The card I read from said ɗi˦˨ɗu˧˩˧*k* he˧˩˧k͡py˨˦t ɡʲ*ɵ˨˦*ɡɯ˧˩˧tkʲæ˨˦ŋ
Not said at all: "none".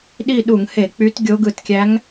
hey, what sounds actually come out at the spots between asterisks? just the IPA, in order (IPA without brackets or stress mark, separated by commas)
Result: ŋ, o˨˦